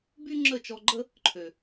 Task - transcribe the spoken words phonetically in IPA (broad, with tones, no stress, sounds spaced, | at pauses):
b y˦ ŋ͡ǁ ə˦˨ t͡ʃ ɔ˧ ɡ͡ǃ ə˦ | ǃʰ ø˨